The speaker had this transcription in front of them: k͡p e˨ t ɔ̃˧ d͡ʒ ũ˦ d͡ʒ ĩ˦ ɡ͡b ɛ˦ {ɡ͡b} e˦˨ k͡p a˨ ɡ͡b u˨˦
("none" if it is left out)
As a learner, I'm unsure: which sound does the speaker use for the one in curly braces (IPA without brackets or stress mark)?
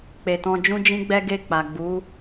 ɡ